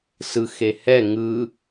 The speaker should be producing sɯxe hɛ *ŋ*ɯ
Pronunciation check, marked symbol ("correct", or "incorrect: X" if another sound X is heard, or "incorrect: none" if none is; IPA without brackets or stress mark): correct